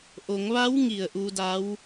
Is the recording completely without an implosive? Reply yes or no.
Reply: yes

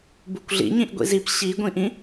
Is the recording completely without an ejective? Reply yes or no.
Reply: yes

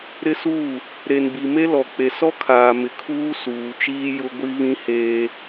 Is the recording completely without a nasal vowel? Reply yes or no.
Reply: no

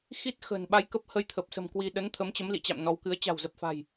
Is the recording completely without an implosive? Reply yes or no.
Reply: no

